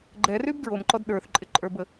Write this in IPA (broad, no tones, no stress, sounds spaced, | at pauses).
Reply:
ɡ͡ǃ ɛ r y b d ɹ o m ǃ ɔ d ɗ ə˞ θ ǃʼ ɪ ǃʼ ə˞ b ə